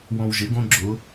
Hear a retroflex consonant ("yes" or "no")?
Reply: no